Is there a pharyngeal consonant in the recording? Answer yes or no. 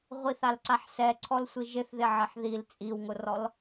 yes